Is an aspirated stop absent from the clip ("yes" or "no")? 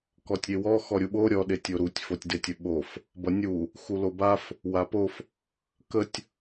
yes